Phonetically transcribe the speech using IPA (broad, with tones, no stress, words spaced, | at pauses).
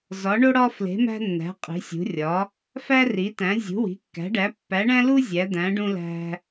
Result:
zɒ˨˦ɳo˦ɽɒ˦fle̤˨˦ mæ̤˦nːæ̤˨˦ qʼi̤˨˦sʲṳ˨˦ rʲɒ˨˦ | fæ˦ri˨˦tæ̃˨˦ zʲṳ˨˦wi̤˨˦kːæ̤˨˦ɖæ˨˦ pːæ˨˦ɳæ̃˦lu˦ zʲæ˨˦d̪æ̃˨˦ ɖũ˦læ̤˦